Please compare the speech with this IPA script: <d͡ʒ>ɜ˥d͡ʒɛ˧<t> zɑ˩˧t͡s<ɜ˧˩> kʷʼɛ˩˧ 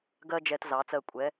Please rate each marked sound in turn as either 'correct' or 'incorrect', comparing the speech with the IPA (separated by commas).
incorrect, correct, correct